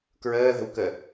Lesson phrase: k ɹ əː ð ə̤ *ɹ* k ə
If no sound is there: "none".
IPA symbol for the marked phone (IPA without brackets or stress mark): w